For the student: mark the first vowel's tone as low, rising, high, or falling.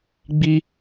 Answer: high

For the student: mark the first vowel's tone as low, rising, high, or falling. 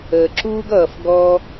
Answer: low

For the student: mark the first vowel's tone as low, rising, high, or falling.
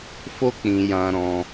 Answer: high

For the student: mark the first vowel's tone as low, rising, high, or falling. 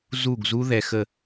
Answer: falling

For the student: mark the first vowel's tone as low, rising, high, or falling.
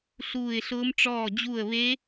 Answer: falling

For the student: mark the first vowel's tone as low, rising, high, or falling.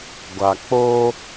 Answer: low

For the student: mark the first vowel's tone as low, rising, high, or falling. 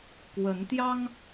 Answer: rising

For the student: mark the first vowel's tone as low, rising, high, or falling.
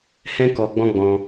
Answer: high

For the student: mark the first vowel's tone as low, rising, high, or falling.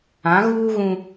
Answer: rising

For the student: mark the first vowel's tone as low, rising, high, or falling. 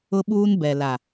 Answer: high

